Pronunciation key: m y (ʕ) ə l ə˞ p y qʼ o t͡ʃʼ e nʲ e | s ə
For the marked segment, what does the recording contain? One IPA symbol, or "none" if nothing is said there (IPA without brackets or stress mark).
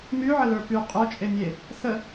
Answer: ʕ